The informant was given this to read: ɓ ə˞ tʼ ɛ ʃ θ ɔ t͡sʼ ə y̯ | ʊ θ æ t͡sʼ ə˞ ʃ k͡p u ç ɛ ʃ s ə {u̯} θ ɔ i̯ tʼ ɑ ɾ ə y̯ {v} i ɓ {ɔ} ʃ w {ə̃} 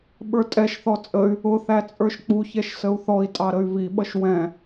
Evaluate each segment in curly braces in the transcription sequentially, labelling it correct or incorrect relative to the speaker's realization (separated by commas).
correct, correct, incorrect, incorrect